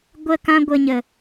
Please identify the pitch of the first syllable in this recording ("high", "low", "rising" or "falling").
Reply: falling